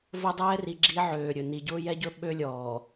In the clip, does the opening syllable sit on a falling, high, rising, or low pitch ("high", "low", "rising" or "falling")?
high